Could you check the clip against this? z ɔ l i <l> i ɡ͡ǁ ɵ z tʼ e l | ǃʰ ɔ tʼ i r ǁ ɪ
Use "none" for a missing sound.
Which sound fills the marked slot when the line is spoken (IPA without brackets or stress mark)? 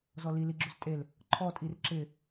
l